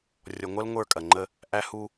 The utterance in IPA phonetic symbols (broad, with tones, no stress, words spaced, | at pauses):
rʲɔ˨ŋʷɐ˦l ŋʷə˞˦˨kʼɐ˨ŋ͡ǃə˦ | ʔæ˦ hu˦